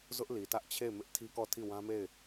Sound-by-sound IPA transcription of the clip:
z ʊ˦ ʔ l i˨ t ä˦ ʔ t͡ɕʰ e˦˨ ɪ̯ m ɪ˦ ʔ tʰ i˦ k ɔ˦˨ tʰ i˦˨ w ã˦ m e˦˨ ɪ̯

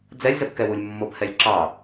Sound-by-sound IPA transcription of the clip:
d͡z ɛ lʲ z ə b k ɛ w u lʲ mː o b h ɛ lʲ ǁ ɑ

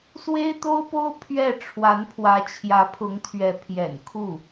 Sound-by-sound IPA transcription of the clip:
s w e˥ ɪ̯ t̪ o˥ ʊ̯ p o˥ ʊ̯ pʰ ɥ ɛ˥˩ ʈ͡ʂʰ w a˧˥ n pʰ w ä˧˥ t͡ɕʰ j ä˧˥ pʰ ʊ˧˥ ŋ t̪ʰ ɥ ɛ˧˥ pʰ j ɛ̰˨˩ n kʰ u˥˩

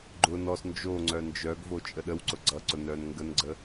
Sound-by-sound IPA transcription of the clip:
ɡ͡ǃ ʊ n ɔ s n d͡ʒ o ŋ͡ǀ œ n d͡ʒ œ ɡ v o t͡ʃʼ ə ɗ ə w ǀ ʊ ɡ͡ǀ ʌ ǀ ʊ n œ n ŋ ɡ ə n ɡ͡ǀ ə

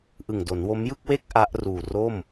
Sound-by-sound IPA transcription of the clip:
ʔ ɯ˨˩ ŋ d o˩˦ n w o˦˥ m j ɯ˥˩ k̚ w e˥˩ k̚ ʔ a˦˥ ʔ r uː˨˩ r o˥˩ m

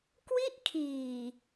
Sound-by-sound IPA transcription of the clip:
k w i˥˩ ʔ kʰ iː˨˩

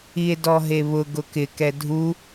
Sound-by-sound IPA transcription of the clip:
i e̯ d ɔ ɦ e β ʊ ɡ ʊ k ɪ k ɛ dʱ u

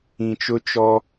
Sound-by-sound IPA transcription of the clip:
ĩ˨ t͡ʃ ʊ˦ t͡ʃ ɔ˦

